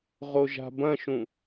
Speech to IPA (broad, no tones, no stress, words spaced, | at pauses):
ʁoʒa̤bɐ̃ʃũ